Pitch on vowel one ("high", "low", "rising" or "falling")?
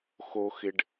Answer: low